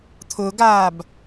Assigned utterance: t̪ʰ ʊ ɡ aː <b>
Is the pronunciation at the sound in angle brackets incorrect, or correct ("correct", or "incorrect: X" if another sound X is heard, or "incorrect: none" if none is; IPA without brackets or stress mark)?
correct